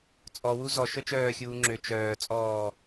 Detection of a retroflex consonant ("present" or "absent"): absent